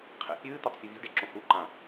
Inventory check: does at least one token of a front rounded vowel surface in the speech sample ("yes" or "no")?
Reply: no